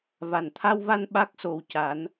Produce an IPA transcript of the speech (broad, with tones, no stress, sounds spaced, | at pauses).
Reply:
v a˨˩ n t̪ʰ a˧ w v a˧ n ɓ a˦˥ k̚ s o˧ w c a˧˥ n